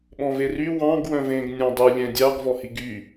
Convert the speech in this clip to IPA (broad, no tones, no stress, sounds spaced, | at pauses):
ɓ ɔ̃ v e r y w ɑ̃ ɡ w œ̃ v ẽ ɡ nʲ ɑ̃ dˤ ʉ lʲ ɛ̃ dʲ ɑ ɡ v ɔ h i ɡ y